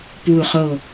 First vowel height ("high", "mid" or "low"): high